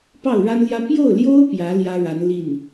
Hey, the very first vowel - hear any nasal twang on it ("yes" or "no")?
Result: no